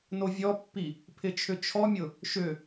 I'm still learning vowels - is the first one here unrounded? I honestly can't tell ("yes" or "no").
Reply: no